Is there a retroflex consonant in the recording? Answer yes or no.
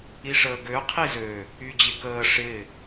yes